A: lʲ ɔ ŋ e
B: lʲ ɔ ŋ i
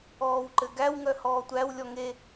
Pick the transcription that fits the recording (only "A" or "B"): A